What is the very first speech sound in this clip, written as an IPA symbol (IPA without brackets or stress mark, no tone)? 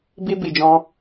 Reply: b